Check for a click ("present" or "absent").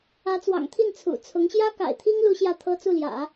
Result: absent